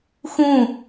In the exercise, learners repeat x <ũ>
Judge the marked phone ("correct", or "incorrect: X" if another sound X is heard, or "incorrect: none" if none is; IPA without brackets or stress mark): correct